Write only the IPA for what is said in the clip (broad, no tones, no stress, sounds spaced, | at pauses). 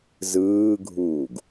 z ɯː ɡʱ uː ɡ